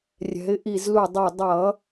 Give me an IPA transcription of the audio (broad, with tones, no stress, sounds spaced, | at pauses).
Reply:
rʲ ɛ̤˩˧ ɪ̯ ʔ i˧˩ z l u˧˩ dˤ o˧˩ dˤ ʌ˧˩˧